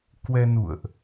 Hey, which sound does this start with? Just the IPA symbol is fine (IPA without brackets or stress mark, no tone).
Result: k